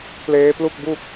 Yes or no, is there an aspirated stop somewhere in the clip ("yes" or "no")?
no